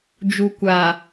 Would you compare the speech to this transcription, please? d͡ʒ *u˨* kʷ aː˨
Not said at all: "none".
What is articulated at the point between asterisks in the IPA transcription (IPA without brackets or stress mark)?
u˨